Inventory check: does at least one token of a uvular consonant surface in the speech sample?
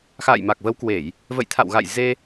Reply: no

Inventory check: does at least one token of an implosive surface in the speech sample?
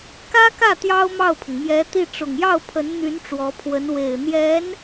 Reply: no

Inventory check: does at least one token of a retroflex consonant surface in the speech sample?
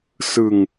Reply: no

